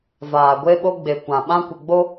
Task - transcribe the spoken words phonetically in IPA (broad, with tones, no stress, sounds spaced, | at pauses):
v aː˨ ɡʷ e˦ ɓ o˦ ɡ͡b e˨ kʷ ã˨ ɓ ã˦ kʷ ɪ˨ ɡ͡b o˦